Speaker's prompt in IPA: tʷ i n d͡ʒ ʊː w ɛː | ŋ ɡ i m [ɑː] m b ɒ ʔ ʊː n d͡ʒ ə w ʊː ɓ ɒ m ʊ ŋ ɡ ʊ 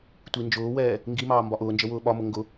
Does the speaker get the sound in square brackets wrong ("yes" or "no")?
no